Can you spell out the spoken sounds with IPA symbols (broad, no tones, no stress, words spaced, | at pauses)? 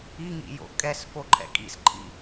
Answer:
iŋḭjo̰ kʼɛsfoǃʰɛ̰ kʼḭsǃʰḭ